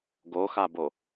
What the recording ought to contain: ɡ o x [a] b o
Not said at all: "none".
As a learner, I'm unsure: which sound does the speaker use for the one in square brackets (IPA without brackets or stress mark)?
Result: a